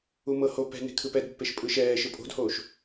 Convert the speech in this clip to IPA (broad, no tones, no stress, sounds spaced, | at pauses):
u m ɤ h o p ɛ̤ n e̤ kʰ ɯ p ɛ d pː e ʃ pʼ ɯ ʃ ɛː ʃ ɯ pʼ o̤ d h oː ʃ